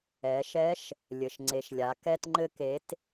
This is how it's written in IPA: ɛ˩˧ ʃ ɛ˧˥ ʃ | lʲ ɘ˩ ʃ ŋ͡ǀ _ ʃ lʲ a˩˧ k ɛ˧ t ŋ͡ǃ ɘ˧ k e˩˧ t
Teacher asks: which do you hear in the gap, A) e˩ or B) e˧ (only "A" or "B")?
A